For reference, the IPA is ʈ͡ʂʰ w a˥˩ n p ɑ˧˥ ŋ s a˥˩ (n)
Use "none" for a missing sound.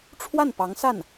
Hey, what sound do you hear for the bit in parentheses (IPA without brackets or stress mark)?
n